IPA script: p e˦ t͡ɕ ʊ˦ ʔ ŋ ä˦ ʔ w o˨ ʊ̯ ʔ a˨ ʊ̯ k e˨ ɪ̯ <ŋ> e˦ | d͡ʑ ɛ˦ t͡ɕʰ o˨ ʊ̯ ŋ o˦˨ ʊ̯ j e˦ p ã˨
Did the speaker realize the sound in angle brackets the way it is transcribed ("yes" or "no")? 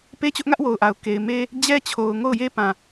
no